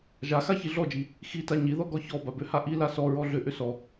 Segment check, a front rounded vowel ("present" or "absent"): present